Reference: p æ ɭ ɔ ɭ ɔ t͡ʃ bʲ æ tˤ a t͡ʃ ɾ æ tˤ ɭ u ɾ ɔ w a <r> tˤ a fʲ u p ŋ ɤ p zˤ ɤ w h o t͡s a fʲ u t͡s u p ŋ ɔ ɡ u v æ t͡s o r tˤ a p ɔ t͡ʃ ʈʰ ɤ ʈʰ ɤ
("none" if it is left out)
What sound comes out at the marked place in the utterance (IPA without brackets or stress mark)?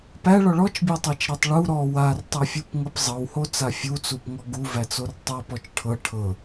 r